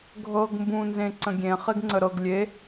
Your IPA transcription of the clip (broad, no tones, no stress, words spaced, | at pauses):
ɡʱɤɡ mbũnzẽ ǀə̃ɡʲẽχeɡ ŋ͡ǀəɾɤɡ lʲe